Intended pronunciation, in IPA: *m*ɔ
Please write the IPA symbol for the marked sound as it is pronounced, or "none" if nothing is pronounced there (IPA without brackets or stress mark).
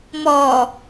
m